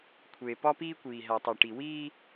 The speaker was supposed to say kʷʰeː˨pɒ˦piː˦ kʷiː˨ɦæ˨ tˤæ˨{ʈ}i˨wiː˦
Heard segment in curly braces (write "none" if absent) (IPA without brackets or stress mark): ʈ